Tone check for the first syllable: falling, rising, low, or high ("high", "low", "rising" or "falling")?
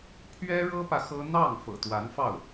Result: high